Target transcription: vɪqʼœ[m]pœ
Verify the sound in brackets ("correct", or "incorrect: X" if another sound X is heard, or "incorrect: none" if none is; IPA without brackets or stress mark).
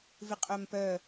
correct